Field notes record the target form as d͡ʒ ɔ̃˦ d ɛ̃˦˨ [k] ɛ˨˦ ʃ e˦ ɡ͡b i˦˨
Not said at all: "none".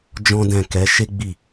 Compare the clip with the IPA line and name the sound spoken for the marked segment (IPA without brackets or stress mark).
k